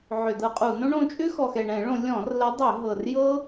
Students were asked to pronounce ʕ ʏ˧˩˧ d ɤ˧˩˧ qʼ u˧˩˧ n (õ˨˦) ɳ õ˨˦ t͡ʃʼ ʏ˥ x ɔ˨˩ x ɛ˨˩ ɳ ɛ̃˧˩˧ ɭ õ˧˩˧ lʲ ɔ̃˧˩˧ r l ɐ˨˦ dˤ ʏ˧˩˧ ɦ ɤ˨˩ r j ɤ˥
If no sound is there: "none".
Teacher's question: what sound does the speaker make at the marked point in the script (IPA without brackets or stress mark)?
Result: õ˥